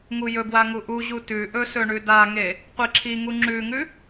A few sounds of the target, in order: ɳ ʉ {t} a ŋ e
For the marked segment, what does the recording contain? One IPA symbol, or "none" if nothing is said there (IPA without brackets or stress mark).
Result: d